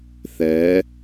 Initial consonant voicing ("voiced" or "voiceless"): voiceless